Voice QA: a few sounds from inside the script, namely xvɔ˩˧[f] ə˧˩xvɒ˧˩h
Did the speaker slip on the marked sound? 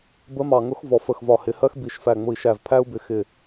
no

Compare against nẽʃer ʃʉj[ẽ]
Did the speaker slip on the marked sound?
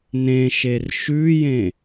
no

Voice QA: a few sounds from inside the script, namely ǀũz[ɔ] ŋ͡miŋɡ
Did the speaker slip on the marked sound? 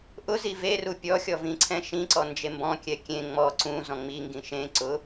yes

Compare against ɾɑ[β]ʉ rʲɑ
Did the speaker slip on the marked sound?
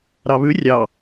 no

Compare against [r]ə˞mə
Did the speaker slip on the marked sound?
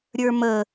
yes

